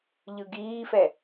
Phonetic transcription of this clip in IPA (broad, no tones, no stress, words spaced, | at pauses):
ʎɯɡiːfɛ